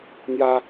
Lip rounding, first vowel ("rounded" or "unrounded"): unrounded